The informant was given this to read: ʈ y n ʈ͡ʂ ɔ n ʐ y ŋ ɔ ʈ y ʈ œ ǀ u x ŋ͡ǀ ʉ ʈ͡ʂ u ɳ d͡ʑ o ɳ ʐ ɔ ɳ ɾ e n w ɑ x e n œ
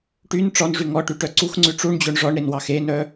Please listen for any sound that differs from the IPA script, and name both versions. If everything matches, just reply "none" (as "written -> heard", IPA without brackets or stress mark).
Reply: none